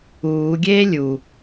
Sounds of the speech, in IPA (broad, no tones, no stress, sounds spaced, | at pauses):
uː ɡʲ eː lʲ u